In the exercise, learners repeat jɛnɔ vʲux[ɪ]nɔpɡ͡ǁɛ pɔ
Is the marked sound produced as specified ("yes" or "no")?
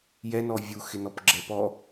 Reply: yes